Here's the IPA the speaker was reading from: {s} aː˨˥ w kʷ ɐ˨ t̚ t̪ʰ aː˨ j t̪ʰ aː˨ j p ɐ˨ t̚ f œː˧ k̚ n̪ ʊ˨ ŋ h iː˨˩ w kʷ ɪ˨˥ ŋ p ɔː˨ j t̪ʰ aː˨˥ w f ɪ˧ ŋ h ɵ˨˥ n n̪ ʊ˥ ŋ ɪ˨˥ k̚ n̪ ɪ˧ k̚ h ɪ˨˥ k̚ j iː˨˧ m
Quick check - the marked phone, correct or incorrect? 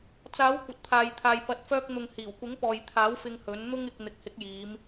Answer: incorrect